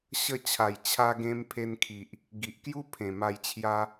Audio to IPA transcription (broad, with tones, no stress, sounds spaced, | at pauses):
ɕ ə˥˧ t͡ɕʰ a˨˩ j t͡ɕʰ a˧ ɡ ẽ˦ m pʰ e˧ n kʰ i˨ ʔ | ɡ i˨ ʔ k j u˦ pʰ ẽ˨˩ m a˧ j t͡ɕʰ j a˦